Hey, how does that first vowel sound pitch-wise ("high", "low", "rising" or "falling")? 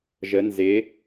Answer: rising